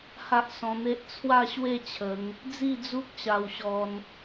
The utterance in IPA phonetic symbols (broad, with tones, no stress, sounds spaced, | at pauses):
h a˦ ʔ s ɔ̃˧ n̪ e˦ ʔ t͡sʰ w a˥˧ ɕ w e˥˧ t͡ɕʰ ə˨˦ ŋ | d͡z i˥˧ d͡z u˦ k̚ ɕ a˧ w ɕ ɔ˧ n